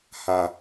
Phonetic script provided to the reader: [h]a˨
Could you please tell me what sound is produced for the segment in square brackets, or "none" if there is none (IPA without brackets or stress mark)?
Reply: h